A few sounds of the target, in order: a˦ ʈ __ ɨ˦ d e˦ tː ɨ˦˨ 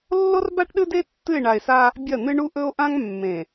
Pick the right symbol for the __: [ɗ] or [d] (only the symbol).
ɗ